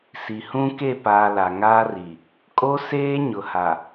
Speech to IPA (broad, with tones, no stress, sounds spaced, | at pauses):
s i˨ h ũ˦ k e˦˨ p aː˨ l a˨ ŋ aː˦ r i˨ | kʼ o˦ s eː˦ ɲ ʊ˨ h a˨